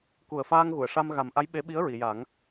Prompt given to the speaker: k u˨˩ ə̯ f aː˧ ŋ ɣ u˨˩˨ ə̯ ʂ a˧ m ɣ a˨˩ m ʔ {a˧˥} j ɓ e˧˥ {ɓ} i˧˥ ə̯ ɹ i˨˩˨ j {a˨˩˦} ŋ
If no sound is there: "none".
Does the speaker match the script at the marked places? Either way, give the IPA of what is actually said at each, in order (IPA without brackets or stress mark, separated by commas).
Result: a˧˥, ɓ, a˨˩˦